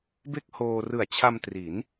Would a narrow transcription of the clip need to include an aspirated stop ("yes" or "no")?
yes